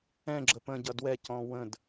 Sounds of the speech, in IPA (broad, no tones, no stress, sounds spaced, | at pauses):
ɛ̃ ɡ͡ǁ ə p ə̃ ɟ ʌ d w ɛ c ɔ̃ w ə̃ d